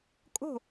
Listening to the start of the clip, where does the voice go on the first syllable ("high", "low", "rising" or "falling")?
falling